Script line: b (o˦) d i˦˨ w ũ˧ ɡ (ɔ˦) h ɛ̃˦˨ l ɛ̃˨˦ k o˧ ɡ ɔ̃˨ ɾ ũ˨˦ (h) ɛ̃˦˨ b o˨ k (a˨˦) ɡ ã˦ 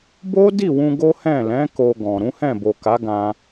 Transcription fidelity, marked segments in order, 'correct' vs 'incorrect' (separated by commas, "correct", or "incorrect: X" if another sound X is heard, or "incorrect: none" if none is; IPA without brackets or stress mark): correct, incorrect: o˦, correct, correct